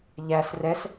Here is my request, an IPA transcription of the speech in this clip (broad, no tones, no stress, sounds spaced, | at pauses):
ʎ æ s r ɛ s